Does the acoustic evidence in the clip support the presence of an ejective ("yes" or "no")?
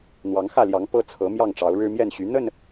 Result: no